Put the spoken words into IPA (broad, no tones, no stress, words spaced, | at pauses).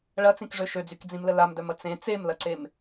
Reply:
ɭɐt͡sĩkʐø ʃød͡zykd͡zĩmlə lamdœmɐ t͡sẽ t͡semlɐǀem